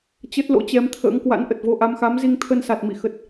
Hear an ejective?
no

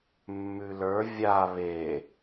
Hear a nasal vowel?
no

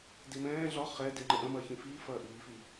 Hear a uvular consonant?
yes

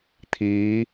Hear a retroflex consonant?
no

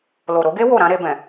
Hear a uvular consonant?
no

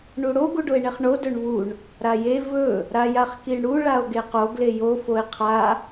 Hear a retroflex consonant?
yes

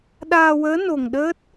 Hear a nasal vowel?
no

